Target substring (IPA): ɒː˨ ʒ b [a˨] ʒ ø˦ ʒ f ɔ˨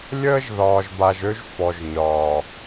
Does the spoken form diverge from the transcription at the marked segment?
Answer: no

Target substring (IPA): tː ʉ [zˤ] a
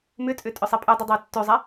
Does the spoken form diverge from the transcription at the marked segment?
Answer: no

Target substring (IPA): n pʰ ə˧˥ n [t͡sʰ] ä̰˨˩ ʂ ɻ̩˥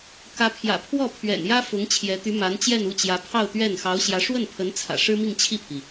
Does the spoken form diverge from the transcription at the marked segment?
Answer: no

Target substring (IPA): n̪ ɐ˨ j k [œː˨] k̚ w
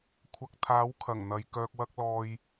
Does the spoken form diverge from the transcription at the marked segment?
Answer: no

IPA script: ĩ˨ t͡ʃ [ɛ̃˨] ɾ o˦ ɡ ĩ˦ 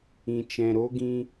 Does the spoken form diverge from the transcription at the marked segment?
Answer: no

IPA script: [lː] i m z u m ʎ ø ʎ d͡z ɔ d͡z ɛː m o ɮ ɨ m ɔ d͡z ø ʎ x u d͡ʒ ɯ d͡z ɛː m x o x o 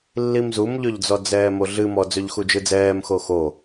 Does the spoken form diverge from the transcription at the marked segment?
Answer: no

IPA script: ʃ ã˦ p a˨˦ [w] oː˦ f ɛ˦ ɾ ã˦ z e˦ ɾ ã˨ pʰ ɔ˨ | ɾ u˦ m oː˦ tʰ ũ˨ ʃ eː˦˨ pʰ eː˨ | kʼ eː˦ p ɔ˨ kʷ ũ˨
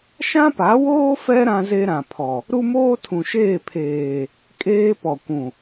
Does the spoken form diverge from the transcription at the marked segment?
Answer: no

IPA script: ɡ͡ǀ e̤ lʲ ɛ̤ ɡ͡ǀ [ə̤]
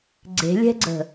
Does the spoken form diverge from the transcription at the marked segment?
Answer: no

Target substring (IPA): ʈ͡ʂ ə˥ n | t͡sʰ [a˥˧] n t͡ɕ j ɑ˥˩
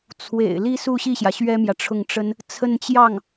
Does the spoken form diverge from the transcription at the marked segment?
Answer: yes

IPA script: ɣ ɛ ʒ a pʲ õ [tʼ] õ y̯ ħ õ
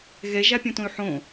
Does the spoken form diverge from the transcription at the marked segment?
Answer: yes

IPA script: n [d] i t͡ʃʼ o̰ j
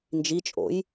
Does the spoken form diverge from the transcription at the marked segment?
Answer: yes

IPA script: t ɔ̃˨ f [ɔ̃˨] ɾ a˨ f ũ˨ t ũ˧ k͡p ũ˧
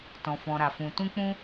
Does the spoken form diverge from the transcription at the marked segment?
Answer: no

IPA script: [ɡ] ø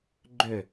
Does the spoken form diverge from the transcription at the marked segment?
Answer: yes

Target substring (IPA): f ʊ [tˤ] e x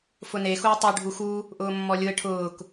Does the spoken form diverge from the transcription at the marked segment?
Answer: yes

